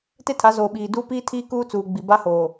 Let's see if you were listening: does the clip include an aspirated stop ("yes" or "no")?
yes